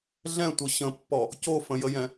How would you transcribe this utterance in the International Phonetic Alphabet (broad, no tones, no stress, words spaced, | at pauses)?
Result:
ɮɛ̃tʷʌ ɕə̃pːɔ | cofə̃jəjɛ̃